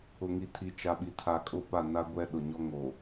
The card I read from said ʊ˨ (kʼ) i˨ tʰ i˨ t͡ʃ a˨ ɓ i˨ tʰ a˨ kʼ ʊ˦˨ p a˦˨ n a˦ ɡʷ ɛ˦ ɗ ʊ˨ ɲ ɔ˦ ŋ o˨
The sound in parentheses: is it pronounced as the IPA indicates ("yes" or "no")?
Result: no